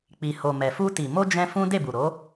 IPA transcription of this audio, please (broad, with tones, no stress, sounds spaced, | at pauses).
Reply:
k͡p i˨ h o˨ m ɛ˨ f u˧ t i˨ m o˧ d͡ʒ ɛ̃˦ f ũ˦ d e˦˨ b u˨ ɾ o˨˦